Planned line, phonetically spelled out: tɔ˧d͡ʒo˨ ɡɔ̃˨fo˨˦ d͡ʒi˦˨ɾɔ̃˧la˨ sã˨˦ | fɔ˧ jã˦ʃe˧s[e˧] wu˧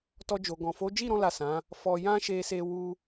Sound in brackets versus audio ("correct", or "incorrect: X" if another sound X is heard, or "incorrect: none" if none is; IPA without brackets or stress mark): correct